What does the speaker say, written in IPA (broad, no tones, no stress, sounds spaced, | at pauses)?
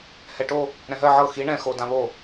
h ɛ ʈ o | ɾ ɛ̃ ɦ ɜ ʕ ɤ x i ɳ ɛ̃ x o d ã β o